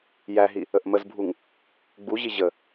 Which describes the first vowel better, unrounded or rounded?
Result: unrounded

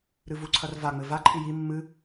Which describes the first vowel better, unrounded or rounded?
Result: unrounded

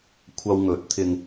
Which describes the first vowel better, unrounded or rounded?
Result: unrounded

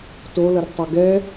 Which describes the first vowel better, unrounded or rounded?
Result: rounded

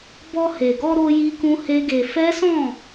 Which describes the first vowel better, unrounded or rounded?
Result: rounded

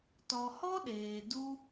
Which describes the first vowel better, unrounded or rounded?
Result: rounded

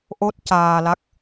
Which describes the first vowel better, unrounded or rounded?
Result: rounded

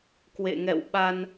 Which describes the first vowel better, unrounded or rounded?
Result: unrounded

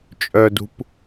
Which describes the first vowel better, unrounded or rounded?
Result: rounded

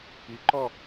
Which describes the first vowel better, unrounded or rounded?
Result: unrounded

